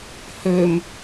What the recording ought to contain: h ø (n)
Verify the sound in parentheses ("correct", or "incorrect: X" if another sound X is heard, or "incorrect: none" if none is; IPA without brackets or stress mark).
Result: incorrect: m